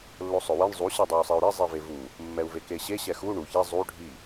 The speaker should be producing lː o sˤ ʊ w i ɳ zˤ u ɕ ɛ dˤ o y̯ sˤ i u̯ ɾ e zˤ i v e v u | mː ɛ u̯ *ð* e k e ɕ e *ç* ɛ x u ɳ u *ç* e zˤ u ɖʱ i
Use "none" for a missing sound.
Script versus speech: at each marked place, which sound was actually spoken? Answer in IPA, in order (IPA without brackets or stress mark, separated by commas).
v, ɕ, ç